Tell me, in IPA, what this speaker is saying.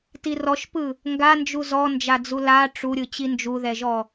t i r ɔ ʃ p ɯ | ŋ ɡ a n d͡ʒ u z ɔ n d͡ʒ a d͡z u l a ʈ͡ʂ u ɾʲ ɯ t͡ɕ i n d͡ʒ u ð ɛ ʒ ɔ

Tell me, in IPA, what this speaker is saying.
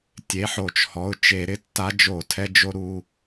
tʲ e˩˧˩ ħ o˧˩˧ t͡ʃ h ɔ˩˧˩ ʊ̯ t͡ʃ e˧˩˧ ɾ ɪ˥˨ tː a˧˥ d͡ʒ o˧˩˧ tʰ ɛ˧ d͡ʒ o˧ ɾ u˩˧˩

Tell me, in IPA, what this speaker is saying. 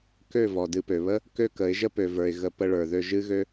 k ø˦˨ v ɔ˨ d ɨ˧ p ø˨ β ə˦ | k ø˦ k ə˨˦ ɪ̯ ʒ ə˦ p ø˨ v ə˞˨ ɪ̯ ɣ ə˨ p ə˧ ɭ ə˞˨ ð ø˧ ʒ ɨ˦ ɣ ø˦

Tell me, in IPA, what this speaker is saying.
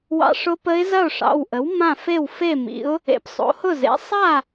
w ɑ̰˧ ʂ ʊ˧˥ p ə˧˥ ɪ̯ z ɐ˥˩ ʊ̯ ʂ ɑ̰˩˧˩ w ʔ ə˩˥ w m ã˥˩ f e˥˩ w f e˥˩ m ḭ˩˥ ʊ̯ | ḛ˩˥ p sˤ o̰˩˥ h ʊ˥˩ z ḛ˩˥ sˤ a˥˩

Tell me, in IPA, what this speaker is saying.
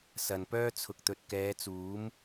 s ɐ˨ n p œː˥ t͡sʰ ʊ˨ k̚ t̪ ɵ˨ t̚ k ɛː˨˧ t͡s uː˨˥ m

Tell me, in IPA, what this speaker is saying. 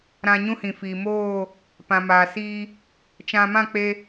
ɾ ã˧ ɲ ũ˦ h ĩ˨ f iː˨ m oː˦˨ | p ã˨ m aː˨ s iː˧ | t͡ʃ ã˧ m ã˦˨ k͡p e˧

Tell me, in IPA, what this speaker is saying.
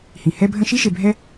h ĩ˩ h ɛ˦ bʱ ə̃˦ ʃ i˥ ʃ e˨ bʱ ɛ˦

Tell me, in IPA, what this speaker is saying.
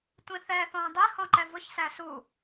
tʷ ĩ θ ɛ θ ɔ̃ː dˤ i h ɔ̃ ǃ ɛ v ʊ ç s æ s u

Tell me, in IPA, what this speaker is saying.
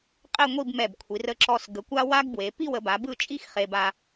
qʼ e˥˧ ŋʷ i˥˧ b m ɛ˧˩ b kʷʰ i˩˧ r ə˧ ǁ ɔ˧ s ɡ ə˩˧ kʷ a˥ w a˥ ɡ b w e˩˧ p i˥˧ w ə˩˧ b a˩˧ b ɯ˥˧ t͡ʃʼ i˥ x χ e˧ b a˧

